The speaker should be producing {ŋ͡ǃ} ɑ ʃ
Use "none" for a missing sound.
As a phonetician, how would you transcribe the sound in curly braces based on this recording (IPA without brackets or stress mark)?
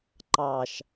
ǃ